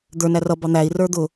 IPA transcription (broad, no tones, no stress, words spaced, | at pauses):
d̪ə˞næ rʌ bɑn̪æi̯ rə˞d̪ʊ